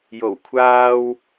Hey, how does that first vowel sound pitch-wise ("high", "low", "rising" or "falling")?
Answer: low